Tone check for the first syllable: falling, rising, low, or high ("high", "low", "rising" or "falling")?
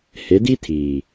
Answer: rising